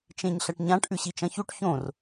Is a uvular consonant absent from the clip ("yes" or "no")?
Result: yes